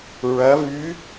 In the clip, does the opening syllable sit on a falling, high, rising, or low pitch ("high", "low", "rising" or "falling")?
rising